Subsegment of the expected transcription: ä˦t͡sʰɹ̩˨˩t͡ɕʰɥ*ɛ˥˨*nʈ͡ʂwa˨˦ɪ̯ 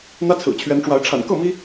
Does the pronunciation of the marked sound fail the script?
yes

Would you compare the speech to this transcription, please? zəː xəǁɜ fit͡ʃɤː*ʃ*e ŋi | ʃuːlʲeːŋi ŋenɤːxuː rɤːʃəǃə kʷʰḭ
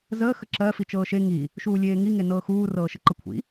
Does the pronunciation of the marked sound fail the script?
no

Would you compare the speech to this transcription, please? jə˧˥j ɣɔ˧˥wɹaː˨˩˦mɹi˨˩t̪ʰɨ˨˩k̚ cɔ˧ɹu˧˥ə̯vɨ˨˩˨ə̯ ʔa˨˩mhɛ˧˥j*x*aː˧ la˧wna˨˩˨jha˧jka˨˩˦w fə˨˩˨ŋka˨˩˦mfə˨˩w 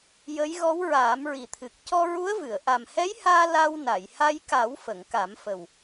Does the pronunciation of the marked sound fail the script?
yes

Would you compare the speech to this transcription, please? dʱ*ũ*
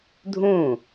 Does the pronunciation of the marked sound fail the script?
no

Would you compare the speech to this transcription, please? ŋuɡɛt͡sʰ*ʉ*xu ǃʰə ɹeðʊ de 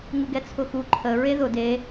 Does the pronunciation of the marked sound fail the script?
yes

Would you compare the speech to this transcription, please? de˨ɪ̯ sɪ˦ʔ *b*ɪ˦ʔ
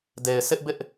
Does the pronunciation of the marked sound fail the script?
no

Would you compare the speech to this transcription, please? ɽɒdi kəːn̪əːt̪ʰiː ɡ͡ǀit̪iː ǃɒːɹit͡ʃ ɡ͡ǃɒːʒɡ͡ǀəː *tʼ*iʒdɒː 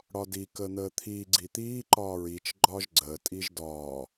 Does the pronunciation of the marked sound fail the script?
no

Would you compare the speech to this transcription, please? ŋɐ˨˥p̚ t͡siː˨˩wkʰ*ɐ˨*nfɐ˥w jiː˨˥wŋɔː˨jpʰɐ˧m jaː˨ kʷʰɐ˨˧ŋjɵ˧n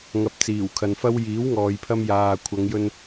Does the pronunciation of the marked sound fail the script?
no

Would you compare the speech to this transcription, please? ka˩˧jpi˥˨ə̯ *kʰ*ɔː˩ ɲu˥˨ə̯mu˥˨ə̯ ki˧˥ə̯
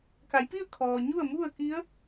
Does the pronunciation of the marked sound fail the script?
no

